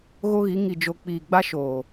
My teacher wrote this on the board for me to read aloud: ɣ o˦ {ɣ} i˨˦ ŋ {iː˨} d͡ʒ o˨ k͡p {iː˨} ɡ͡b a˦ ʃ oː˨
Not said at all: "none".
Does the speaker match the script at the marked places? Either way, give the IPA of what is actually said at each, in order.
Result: ɣ, i˨, iː˨

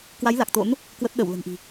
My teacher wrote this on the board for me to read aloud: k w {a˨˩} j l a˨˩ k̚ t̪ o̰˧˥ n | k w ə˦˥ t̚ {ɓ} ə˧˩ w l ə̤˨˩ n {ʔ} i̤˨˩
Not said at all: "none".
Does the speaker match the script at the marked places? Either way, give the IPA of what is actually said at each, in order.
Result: a˨˦, ɗ, ʔ

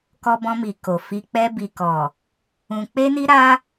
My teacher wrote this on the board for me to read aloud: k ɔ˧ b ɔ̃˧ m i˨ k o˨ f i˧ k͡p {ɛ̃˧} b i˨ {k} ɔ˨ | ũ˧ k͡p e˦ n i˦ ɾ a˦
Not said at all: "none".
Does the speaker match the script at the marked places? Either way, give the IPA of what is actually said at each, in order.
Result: ɛ˧, k

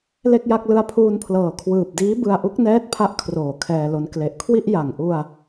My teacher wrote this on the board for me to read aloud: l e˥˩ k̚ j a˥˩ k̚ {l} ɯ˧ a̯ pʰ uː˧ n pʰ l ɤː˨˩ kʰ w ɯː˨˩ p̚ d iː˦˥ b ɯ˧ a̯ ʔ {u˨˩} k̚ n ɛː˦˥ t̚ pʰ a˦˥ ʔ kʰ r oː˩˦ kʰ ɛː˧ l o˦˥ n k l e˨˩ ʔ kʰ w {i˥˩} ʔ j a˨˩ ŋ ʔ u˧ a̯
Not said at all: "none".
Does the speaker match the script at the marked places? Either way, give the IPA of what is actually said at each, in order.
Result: l, u˦˥, i˥˩

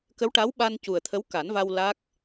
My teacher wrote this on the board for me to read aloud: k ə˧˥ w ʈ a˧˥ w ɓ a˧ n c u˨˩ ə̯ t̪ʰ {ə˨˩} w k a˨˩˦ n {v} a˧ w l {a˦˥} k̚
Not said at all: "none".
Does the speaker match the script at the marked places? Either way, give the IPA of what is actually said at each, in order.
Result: ə˧˥, v, a˦˥

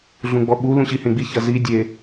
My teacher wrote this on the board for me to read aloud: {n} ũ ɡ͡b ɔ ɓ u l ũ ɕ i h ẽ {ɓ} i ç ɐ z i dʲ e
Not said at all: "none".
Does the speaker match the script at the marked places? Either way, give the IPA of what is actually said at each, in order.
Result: ɮ, ɡ͡b

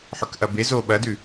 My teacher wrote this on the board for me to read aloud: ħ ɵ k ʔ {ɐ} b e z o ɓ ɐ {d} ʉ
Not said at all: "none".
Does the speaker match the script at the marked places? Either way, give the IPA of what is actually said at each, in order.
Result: ɐ, d

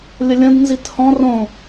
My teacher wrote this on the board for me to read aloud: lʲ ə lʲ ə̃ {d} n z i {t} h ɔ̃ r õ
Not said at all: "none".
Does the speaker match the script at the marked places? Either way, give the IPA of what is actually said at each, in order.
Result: d, t

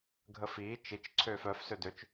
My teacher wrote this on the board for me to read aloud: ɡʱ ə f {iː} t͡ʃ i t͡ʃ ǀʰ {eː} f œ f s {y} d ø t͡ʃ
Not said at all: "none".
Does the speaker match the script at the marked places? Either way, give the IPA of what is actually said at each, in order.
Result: iː, øː, ø

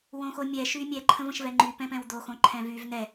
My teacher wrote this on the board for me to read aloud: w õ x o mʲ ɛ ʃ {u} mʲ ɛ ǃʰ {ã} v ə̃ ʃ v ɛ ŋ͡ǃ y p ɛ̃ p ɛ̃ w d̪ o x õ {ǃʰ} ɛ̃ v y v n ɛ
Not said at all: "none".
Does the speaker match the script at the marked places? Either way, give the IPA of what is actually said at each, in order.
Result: y, ə̃, ǃʰ

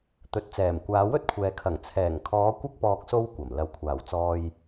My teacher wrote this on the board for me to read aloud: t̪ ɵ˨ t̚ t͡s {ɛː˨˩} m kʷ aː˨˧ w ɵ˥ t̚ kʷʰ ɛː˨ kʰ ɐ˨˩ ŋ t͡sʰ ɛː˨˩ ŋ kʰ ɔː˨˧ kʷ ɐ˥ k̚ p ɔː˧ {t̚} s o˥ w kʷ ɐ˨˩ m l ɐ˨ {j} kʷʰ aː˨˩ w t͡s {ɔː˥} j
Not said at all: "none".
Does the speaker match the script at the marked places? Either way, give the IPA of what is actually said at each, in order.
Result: ɛː˨˩, k̚, w, ɔː˧

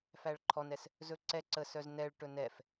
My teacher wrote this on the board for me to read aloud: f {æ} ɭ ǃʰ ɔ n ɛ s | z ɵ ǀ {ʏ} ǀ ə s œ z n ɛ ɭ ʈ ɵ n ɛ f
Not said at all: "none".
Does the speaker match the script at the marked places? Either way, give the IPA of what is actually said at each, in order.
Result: æ, ɛ

